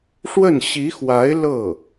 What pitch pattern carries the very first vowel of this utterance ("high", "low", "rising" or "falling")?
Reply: falling